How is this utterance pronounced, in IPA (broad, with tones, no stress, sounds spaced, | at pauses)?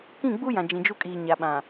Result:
k ĩ˦˨ ɡ͡b u˦ j ã˨ d͡ʒ ĩ˨ d͡ʒ u˦ kʼ iː˨ ɲ a˨ ɓ ã˨